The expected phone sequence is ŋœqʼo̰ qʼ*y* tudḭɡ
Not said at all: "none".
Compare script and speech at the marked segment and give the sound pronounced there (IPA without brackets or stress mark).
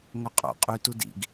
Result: y